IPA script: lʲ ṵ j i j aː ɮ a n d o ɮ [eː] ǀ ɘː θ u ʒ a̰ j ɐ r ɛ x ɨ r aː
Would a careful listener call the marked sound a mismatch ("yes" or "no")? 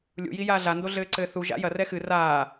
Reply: yes